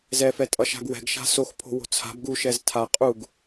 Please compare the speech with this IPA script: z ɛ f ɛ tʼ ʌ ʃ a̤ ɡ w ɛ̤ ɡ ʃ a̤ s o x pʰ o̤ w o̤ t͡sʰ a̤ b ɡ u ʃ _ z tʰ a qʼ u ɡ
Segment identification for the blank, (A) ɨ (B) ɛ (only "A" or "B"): B